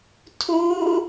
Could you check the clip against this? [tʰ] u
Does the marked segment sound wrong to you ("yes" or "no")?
no